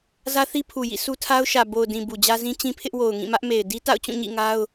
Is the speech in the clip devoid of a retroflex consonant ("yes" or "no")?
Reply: yes